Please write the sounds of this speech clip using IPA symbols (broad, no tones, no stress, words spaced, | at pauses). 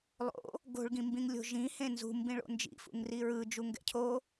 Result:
lˠo̰ | ɡo̤ɭɡĩmbĩŋlʲo̤ ʒĩhẽ nzṳmbĩɭo̰ nd͡ʒḭfṵŋri ɹɯd͡ʒuŋɡɛ̰ cʰo